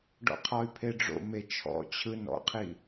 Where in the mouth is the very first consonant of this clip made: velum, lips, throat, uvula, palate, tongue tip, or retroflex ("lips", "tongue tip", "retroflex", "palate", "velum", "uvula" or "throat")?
retroflex